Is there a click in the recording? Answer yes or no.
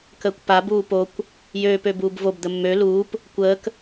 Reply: no